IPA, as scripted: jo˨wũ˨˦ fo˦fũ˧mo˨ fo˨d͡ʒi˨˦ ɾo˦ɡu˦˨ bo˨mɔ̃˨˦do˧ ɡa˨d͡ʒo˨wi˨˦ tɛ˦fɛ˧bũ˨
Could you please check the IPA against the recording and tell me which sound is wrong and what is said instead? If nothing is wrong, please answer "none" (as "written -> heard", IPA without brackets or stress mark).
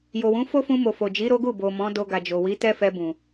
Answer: none